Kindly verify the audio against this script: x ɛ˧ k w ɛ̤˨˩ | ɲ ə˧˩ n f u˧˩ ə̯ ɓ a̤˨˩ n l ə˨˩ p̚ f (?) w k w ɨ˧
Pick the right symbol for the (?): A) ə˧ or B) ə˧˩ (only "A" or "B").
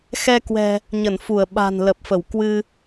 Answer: B